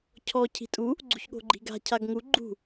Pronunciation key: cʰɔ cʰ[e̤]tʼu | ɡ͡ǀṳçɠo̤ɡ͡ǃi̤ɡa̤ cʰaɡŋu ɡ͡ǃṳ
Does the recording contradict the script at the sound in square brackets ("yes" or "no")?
yes